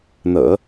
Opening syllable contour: low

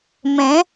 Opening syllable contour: rising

